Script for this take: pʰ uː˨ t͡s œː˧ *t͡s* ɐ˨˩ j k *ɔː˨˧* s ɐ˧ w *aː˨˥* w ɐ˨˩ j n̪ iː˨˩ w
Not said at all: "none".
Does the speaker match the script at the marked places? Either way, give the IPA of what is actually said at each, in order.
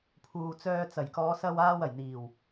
t͡s, ɔː˨˧, aː˧

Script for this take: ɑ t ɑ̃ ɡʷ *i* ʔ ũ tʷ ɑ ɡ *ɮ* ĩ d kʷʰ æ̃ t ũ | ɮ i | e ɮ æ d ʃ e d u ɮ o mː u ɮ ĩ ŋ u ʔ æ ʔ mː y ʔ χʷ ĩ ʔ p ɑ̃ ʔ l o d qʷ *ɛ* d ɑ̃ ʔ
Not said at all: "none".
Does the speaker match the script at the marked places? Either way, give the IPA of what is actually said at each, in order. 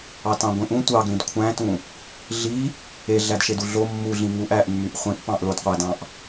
ĩ, l, æ

